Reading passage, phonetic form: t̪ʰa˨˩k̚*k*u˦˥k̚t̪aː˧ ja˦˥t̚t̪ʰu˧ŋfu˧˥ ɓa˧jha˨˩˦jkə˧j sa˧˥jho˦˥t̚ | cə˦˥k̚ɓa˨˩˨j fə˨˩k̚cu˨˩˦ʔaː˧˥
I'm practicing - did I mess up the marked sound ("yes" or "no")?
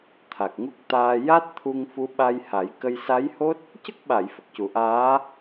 yes